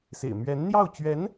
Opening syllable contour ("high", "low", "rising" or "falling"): low